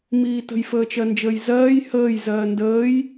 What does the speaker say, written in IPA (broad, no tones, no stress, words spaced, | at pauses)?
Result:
miːtə̤j fəːt͡ʃɜnd͡ʒəːjzɜːj həːj zɜːndəːj